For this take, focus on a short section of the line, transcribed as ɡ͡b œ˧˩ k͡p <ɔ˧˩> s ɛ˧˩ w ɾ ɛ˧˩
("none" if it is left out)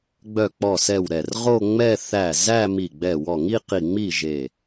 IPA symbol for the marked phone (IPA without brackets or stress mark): ɔ˧˩